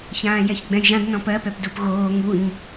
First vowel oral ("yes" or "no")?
no